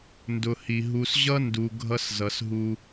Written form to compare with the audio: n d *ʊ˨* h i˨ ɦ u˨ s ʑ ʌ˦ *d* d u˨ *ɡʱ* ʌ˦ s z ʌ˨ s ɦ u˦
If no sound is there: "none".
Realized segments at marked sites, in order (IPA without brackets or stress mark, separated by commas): ʊ˨, n, ɡʱ